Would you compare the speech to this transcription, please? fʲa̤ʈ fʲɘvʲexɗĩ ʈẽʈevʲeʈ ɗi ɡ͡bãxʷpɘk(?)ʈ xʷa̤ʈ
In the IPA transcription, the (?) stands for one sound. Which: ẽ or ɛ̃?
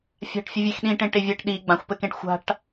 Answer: ẽ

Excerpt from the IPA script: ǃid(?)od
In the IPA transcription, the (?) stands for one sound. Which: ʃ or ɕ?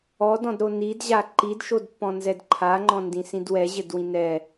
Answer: ʃ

